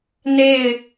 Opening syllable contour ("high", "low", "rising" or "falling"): falling